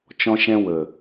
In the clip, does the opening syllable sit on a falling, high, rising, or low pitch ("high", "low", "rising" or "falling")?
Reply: high